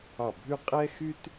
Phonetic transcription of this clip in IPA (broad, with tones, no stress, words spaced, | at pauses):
ɑ˧˩bʱʉ˥˧ qʼɛ˥xy˥t